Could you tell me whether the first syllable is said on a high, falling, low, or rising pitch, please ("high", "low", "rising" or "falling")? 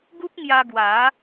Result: high